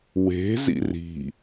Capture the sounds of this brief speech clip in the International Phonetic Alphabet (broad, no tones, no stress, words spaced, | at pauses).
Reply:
we̤zḭ ri̤